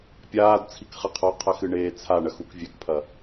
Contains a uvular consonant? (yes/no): yes